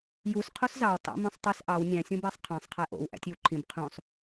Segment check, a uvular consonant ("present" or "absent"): present